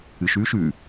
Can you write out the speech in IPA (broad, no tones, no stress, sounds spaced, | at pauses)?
ɨ ʃ ʉː ʃ ʉː